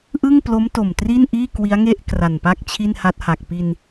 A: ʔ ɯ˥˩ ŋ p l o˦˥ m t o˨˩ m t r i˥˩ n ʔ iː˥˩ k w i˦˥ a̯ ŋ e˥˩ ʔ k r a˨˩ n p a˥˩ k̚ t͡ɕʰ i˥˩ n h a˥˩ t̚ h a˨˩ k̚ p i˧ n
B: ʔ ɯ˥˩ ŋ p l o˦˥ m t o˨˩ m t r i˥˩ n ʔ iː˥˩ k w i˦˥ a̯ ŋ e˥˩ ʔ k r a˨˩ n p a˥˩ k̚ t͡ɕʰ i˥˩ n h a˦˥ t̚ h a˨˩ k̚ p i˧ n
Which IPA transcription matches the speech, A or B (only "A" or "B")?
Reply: B